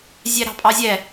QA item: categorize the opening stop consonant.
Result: ejective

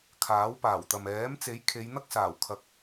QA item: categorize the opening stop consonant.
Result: aspirated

